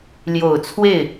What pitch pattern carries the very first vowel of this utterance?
low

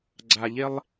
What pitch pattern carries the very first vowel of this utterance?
low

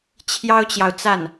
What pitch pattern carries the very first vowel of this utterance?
high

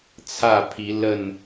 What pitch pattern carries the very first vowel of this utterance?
falling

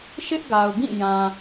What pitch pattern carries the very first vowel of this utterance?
high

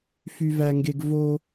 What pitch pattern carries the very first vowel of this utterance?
high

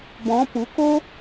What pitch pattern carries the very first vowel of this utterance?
rising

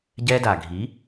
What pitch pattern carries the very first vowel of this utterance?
high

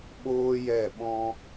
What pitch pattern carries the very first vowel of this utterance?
high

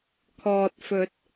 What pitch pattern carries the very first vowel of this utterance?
low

